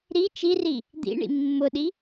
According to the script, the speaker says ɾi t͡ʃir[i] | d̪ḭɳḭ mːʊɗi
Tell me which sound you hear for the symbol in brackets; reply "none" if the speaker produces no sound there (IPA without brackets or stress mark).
i